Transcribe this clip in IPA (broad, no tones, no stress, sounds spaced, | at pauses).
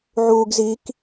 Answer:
ʕ uː ɡ z i k